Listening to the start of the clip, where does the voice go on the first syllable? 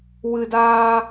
high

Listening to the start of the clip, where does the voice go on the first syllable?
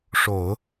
low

